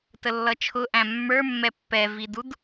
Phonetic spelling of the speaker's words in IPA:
təlːʌt͡ʃʰʊʔæ̃ mːə˞mːɛ pːɛvidud

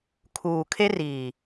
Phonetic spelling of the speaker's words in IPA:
kʰuː˨ kʰe˦riː˨

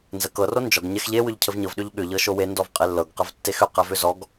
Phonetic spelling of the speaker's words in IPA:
nzəkɤ rond͡ʒɔɡ ɲɛxʎe wʏʎcʰəvɲɤv ɗʏʎɠʏ ʎɤʃowe ndɔvqʼelːɤɡ qəvtːexʏ qɛvʏzɔɡ

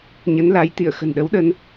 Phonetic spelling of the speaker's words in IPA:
ɲə˨˦nla˨˦jt̪ḭ˧˨ə̯ xə̤˨˩nɗə˨˦wɗə˧n

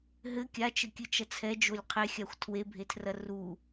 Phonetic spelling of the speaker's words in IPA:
ɦɘ kʲat͡ʃɘkʲɨt͡ʃɐ t͡sʰɛd͡ʒolʲ qʰexʲaxʷ tʰwebʱetʰrɐ ru

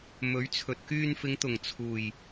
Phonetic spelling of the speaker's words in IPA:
mɵ˨˥ɥt͡sʰɵ˨t̚ kyː˧nfɪ˨˧ŋt̪ʊ˨˩ŋ t͡sʰuː˨˩j

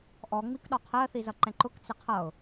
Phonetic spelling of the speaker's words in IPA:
ʔɔ ŋ͡mikɗɒqʰɜ θizʌǃɛ̃ǃʊk t͡sɪqʰʌʊ̯

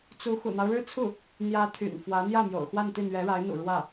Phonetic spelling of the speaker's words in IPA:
t͡su˧˥ xṵ˨˩n̪ɑ˦ʊ̯ɻɻ̩˥t͡sʰu˥˩ | n̪jä˧˥ t̪ʰy̰˨˩nfwä˧˥ n̪jä˥˩ mjo̰˨˩ʊ̯xwa˥˧nt̪i˥˩ n̪ɥɛ˧˥ɻa˧˥ɪ̯n̪ṵ˨˩ ɻwä˥˩

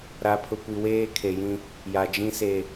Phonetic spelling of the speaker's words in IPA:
ɾa˨pʰʊ˨kʷi˨ weː˦kʰe˨jĩ˦ | ja˨d͡ʒĩ˦se˨

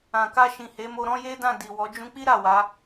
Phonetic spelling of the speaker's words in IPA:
ã˨ka˧ʃĩ˨ he˨˦mo˧ɾɔ̃˦je˦ dã˦˨di˨ wɔ˨˦ d͡ʒũ˧k͡pi˦ ɾa˦˨wa˨˦

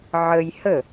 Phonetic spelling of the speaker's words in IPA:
ʕəj hə

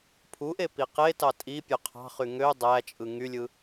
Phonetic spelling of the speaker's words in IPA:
pʰuʔe piqetɑ tʼi pʲøqʰɑ̤χy ŋø dˤæt͡ʃʼɯ ŋylʲɯ

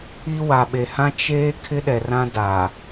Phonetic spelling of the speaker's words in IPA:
i˦ wa˨ɓe˨hã˦ t͡ʃeː˦ kʰɪ˦ɗɛ˨rã˦da˨

